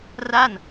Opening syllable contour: falling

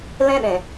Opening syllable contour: high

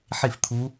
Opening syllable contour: falling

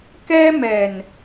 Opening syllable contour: high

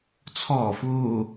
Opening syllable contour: low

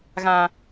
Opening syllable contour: low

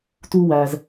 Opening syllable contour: high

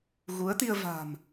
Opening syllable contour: rising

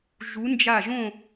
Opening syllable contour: rising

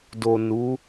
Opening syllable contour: low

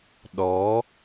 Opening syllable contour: rising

